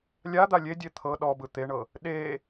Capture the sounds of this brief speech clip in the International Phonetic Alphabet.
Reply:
lʲ a d̪ a lʲ e dʲ e t̪ʰ ɤ ɗ ɔ b ɯ t̪ e ɳ ɤ | ɗ e

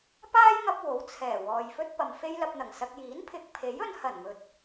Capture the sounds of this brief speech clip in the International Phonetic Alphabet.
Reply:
p aː˥ j ŋ ɐ˧ p̚ w o˨˥ w t͡sʰ ɛː˨˩ w ɔː˨ j f ɵ˥ t̚ p ɐ˨ m f e˥ j l ɐ˧ p̚ n̪ ɐ˨˩ ŋ s ɐ˧ k̚ j iː˨˥ n pʰ ɪ˨ k̚ pʰ e˨˥ j ɵ˧ n h ɐ˨˩ n m ɵ˨ t̚

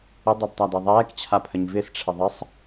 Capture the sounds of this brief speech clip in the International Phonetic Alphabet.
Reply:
ə dˤ ɛ d tˤ a d ɛ ðˤ ɛː k t͡ɕʰ a pʰ ə ɲ v ɪ s ʈ͡ʂʰ ɪ ðˤ ə sˤ

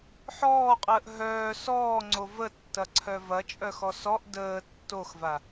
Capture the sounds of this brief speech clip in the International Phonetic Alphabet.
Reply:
ħ ɔː qʼ əː ʔ ɦ œː s ɔː ŋ͡ǀ o v ə tː ɐ ǀʰ œ v ɐ t͡ʃʼ œ x ɔ s ɔ ʔ d əː tː o x v a

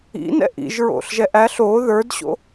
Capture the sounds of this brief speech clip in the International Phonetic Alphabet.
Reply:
ḭ n ɛ̰ ʔ ḭ ʒ ɹ o̰ ɬ ʒ ɛ ʔ æ ɬ o ð ə˞ d ɕ o̰

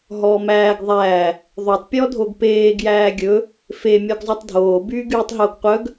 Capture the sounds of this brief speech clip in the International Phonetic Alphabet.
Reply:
ɦ ɔː m æː ɡ ðˤ æː | ðˤ o tˤ pʲ ɔ dʱ o ɡ p eː ɡ j æː ɡʲ ɵ | f e mʲ ɔ ɡ zˤ œ tˤ dʱ oː b yː ɡ yː tˤ ɦ o ɡ qʷ œ ɡ

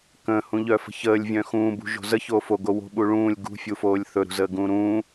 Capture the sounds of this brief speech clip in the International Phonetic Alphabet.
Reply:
k ə̃ː h ũ ʎ œ f ə̤ ç əː lʲ vʲ œ̃ x ũː b ṳ ʒ o̤ z ə ç oː f o ɡ o w o̤ ɓ u ɭ ũː lʲ ɡ ṳ fʲ u f oː lʲ θ ɵ ɾ ṳ z əː ɡ ũː ɾ ũː

